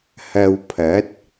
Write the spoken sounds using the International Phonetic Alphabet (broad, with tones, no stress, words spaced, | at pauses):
hɐ˧wpʰɐ˨˥t̚